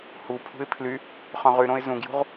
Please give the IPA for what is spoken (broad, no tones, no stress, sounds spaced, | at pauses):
h u pʰ ṳ ɪ̯ pʰ l y | χ œ̃ ʁ y ɾ õ ɪ̯ z ũ ɡ j ṳ ʁ